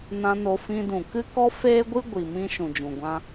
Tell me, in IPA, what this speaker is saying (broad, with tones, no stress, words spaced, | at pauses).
nã˧no˧fĩ˧ dũ˨kɨ˦kɔ˦ feː˦ɡʷɨ˦ ɡʷi˨mĩ˧ ʃũ˨d͡ʒũ˨ɡʷã˧